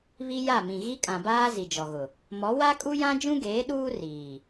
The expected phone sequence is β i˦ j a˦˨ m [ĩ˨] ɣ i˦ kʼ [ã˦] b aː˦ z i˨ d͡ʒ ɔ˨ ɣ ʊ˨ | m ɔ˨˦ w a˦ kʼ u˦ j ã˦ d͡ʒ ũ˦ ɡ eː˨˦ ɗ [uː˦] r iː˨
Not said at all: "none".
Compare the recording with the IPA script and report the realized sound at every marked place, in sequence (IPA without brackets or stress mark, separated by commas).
ĩ˨, ã˨, uː˦